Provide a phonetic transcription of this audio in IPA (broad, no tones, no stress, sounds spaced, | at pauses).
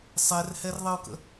sˤ ɛ r h ɛ r ðˤ ə ʊ̯ k ə̰